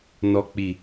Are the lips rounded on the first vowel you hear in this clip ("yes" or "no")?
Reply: yes